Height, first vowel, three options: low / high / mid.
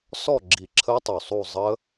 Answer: mid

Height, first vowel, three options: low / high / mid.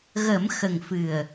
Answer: mid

